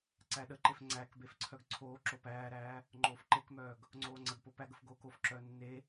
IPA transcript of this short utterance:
ǀæɗəǃef ŋ͡ǀækbef ǀʰœɡǀʰoːǁo pæːɾæː | ŋ͡ǃoːfǃekmœːɡ | ŋ͡ǀoːŋ͡ǀəɡpo pæɡəf ɡoːkofǁœː nːe

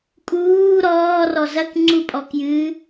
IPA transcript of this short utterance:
kʼuː ɾɔːrɔ zɐkŋ͡ǀupʼɔkjɨː

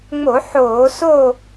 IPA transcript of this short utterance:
ŋ͡mo˧˩˧ ħoː˧˩˧so˥˨

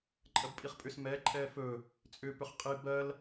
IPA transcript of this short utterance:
ǃʼɜbpʼiχpʼʏs mɛ ǃʼɛːfɵ | t͡sʼʏ pʏχqʼi bɜl

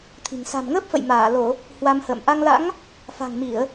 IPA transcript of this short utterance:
t̪ʰi̤˨˩ŋ sa̤˨˩mŋəː˦˥p̚fə̰˧˨j maː˧˩lo˧˩˨ | hwa˧mhə̰ː˧˨m ʔa˧ŋla̰˧˥ŋ | fa̤˨˩ŋmi˧˩˨ə̯

